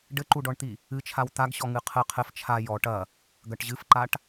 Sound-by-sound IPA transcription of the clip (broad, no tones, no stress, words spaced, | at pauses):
ɖɘǃuɖɔɳt̪i | ɨt͡ʃʰaw t̪aɡɕɔ ŋɨqʰɘ qʰɘf t͡ʃʰa jɔ ʈɐ | ɡɐʈʑɨfǃaʈ